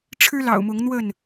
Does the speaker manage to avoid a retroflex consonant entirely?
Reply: no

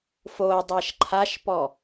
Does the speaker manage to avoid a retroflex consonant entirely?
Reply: yes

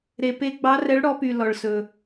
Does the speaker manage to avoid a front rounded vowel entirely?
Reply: no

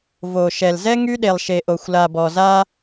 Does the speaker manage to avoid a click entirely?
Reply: yes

